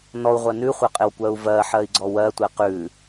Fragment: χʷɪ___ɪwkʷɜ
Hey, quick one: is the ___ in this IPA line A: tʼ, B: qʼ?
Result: B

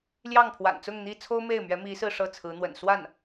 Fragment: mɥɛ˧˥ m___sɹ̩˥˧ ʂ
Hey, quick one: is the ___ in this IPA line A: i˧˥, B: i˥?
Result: A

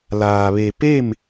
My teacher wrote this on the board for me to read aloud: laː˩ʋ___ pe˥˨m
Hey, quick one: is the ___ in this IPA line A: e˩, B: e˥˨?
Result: A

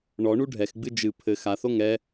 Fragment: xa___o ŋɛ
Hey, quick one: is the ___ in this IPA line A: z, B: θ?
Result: B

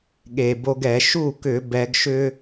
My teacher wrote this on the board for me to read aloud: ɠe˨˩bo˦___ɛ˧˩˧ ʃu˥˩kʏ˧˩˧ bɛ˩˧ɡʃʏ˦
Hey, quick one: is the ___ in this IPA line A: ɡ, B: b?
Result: A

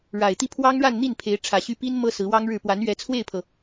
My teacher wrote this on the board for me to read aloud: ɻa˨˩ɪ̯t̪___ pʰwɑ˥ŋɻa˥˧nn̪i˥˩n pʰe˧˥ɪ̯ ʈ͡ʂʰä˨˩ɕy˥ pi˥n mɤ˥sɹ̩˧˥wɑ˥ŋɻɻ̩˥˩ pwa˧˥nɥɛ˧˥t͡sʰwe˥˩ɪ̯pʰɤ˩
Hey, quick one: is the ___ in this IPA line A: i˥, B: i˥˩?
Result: B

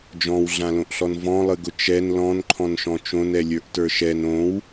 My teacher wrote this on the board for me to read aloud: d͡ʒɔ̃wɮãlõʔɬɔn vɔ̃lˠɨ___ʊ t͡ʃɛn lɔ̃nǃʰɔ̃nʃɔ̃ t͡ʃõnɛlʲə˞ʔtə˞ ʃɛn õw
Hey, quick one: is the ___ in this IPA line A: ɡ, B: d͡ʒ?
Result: A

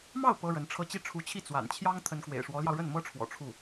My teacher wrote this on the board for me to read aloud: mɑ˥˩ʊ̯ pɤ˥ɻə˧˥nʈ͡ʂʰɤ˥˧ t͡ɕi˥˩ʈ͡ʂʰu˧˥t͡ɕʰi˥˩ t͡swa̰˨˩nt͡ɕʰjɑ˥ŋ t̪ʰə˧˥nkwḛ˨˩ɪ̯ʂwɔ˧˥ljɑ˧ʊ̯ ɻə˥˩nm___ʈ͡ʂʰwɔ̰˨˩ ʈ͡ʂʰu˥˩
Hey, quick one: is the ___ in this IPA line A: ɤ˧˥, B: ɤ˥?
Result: B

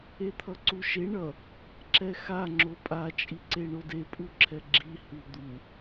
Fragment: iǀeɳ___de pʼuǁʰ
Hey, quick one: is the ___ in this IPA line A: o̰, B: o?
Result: B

